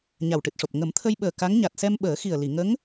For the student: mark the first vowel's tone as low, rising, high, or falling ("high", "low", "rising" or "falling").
low